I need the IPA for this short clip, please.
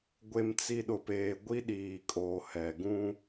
ɡʷ e˨ m t͡s i˨ ɗ ʊ˨ p eː˨ ɡʷ i˦ ɗ iː˨ kʼ oː˨ h ɛ˨ ɡ ũ˦

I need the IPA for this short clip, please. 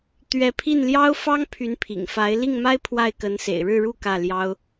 t̪ ɥ ɛ˧˥ pʰ i˥˩ n l j ɑ˥ ʊ̯ f ɑ˥ ŋ pʰ y˧˥ n pʰ ḭ˨˩ ŋ f a˧˥ ɪ̯ l i˥˩ ŋ m a˥ ɪ̯ pʰ w a˥˩ ɪ̯ k ə˧˥ n s ḛ˨˩ ɪ̯ ɻ ɻ̩˥˧ ɻ u˥˧ k ä˥˩ l j ɑ˥ ʊ̯

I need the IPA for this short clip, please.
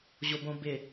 ʑ o b õ b ɪ

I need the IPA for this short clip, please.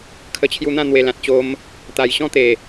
kʰ ə˧ t͡ɕʰ j u˧ n̪ ã˥˧ n̪ w e˨˩ l ã˨ t̚ t͡ɕ o˧ m | t̪ a˨˩ j ɕ ɔ̃˦ t̪ e˨˩

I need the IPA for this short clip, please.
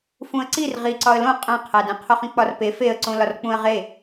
f ũ ə̯ ǀ i r ʁ i ǀ ɒ ə̯ l õ qʼ æ̃ qʰ æ d ẽ qʰ o χ ĩ k͡p ɒ r p e f e ə̯ ǀ õ l ɒ r k͡p ũ ə̯ ʁ e

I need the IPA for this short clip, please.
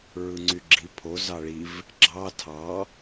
ɹ ɯ ŋ͡ǀ y ɡ͡ǁ i pʰ o z ɑ ɭ i v | ɡ͡ǁ ɑ tʰ ɑ

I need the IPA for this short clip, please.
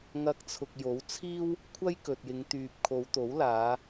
ŋ ɐ˧ k̚ t͡sʰ ʊ˨ k̚ j o˨˥ w t͡sʰ iː˥ w | kʷʰ ɐ˥ j k ɵ˨ t̚ j ɪ˨˧ ŋ t̪ yː˨ p̚ kʰ o˨˧ w t̪ o˨˥ w l aː˨˧

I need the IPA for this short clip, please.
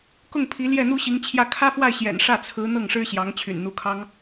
k ʊ˥˩ ŋ pʰ i˧˥ l j ɛ˥˩ n̪ u˥ ɕ i˧˥ ŋ t͡ɕʰ j ä˥˩ kʰ ä˥ f w a˥˩ ɪ̯ ɕ j ɛ̰˨˩ n ʂ ä˥˩ t͡sʰ ɹ̩˧˥ n̪ ɤ˥˩ ŋ ʂ ɻ̩˥ ɕ j ɑ˧˥ ŋ t͡ɕʰ y̰˨˩ n n̪ u˧˥ kʰ ɑ˥ ŋ

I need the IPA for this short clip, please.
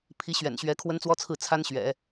pʰ i˧˥ ɕ ɥ ɛ̰˨˩ n ɕ ɥ ɛ˧˥ kʰ w ə˥ n t͡s w ɔ˥ t͡sʰ ɹ̩˥˩ t͡sʰ a˥ n ɕ ɥ ɛ̰˨˩˦

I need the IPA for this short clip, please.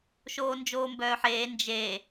ʃ oː n d͡ʒ oː m b œː ħ eː n d͡ʒ e

